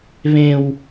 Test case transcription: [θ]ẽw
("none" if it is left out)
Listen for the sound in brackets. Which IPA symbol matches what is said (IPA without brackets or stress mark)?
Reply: β